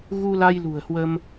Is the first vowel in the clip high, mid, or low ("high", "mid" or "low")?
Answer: high